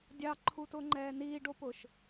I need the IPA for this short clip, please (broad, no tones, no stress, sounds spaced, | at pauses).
dʲ ɑ ǃʰ u t ʊː ŋ͡ǃ ɛː n iː ɖ o p ʊː ʃ